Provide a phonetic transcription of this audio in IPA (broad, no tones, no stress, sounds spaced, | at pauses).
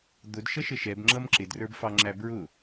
d̪ ʊ d ʃ ʌ ʃ ə ʃ ɛ b ŋ͡ǁ ʌ m ǁ ɪ d r ə˞ b f ɑ ŋ͡ǁ æ b ɹ ʊ